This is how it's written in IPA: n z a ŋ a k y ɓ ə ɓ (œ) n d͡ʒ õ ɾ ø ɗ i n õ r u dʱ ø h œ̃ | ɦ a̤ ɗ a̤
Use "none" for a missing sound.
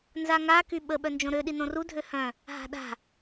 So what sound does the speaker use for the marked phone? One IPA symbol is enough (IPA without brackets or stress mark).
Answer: œ